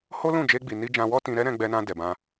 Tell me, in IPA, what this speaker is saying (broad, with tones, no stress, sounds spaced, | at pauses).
h o˦ l ũ˦˨ d͡ʒ e˧ ɡ͡b i˨ n i˧ d͡ʒ ã˧ w ɔ˦ t ĩ˧ ɾ ɛ˦ ɾ ɛ̃˧ ɡ͡b ɛ˧ n ã˧ d ɛ˨ b ã˧